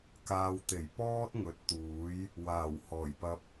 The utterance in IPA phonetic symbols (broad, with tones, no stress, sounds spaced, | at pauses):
k aː˨ w t̪ e˨˩ j p ɔː˥ t̚ ŋ ɵ˨˥ t̚ t̪ uː˨˥ j | w aː˨˩ w h ɔː˨˩ j p ɐ˧ p̚